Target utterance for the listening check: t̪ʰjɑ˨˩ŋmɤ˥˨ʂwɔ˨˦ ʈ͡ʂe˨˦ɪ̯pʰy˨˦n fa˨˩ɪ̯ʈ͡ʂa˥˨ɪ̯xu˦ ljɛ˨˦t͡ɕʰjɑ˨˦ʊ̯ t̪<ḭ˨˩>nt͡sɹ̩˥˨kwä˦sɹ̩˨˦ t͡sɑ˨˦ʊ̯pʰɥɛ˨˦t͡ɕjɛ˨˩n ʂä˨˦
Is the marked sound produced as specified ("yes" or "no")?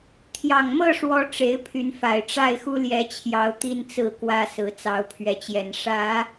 no